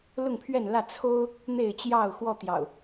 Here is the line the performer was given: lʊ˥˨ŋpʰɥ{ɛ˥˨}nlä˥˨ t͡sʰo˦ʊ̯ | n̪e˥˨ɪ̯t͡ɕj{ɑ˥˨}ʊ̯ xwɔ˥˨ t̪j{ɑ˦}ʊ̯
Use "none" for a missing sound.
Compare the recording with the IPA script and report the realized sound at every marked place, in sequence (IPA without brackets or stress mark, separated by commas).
ɛ˥˨, ɑ˥˨, ɑ̰˨˩